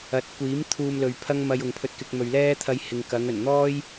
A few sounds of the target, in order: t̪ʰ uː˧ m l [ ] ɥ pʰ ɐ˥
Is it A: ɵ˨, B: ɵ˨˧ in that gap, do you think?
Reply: A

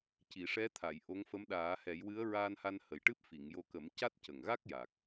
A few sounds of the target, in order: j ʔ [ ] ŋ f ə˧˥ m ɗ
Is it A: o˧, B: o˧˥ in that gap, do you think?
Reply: B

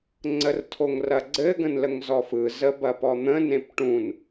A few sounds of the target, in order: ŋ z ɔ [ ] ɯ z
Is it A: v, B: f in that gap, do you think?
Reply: B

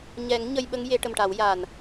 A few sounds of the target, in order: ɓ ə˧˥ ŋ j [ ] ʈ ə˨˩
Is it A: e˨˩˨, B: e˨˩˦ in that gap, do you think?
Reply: B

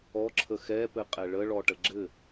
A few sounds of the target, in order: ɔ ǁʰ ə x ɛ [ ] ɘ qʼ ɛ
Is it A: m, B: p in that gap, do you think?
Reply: B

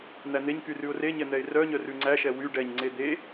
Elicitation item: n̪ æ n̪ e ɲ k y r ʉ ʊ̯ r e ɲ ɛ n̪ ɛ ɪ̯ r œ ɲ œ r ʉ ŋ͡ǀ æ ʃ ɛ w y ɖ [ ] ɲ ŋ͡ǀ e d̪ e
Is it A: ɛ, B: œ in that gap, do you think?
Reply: A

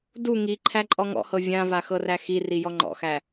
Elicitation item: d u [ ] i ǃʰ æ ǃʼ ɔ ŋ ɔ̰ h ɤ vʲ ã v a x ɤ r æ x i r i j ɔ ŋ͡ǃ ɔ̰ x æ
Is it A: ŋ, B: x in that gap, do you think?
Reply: A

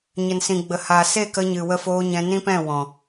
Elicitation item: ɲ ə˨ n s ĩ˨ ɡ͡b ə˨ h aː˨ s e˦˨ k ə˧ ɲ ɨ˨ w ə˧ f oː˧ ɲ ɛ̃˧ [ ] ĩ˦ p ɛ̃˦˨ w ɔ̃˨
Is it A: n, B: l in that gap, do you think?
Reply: A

